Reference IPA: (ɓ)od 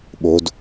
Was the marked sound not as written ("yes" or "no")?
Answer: no